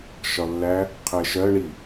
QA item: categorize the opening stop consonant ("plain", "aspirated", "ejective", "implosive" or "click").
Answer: aspirated